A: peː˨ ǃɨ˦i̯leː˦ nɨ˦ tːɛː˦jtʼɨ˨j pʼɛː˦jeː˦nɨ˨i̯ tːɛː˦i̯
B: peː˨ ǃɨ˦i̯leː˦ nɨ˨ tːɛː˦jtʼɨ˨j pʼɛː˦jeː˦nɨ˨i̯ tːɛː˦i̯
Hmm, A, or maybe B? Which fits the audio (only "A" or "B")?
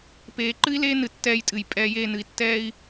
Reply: B